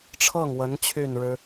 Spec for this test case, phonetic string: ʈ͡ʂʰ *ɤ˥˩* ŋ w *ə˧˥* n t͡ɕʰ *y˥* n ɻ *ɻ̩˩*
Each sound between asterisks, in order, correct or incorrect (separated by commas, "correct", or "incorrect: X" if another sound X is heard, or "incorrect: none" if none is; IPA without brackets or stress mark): correct, correct, incorrect: y˥˩, incorrect: ɻ̩˥